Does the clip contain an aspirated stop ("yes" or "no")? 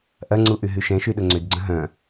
no